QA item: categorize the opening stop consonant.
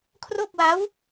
aspirated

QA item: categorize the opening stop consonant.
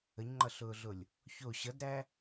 click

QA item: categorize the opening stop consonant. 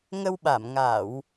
implosive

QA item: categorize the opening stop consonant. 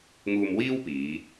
plain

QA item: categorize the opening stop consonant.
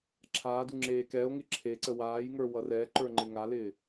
click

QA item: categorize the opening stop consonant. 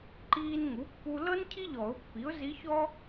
click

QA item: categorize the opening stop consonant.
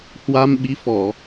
implosive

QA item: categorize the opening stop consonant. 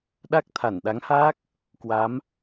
implosive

